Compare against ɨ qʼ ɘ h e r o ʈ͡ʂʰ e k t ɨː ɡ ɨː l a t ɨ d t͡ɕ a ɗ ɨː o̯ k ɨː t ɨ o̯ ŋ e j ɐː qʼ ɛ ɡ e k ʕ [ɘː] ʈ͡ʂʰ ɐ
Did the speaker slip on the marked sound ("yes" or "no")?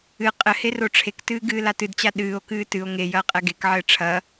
no